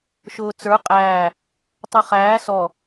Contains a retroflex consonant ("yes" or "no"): no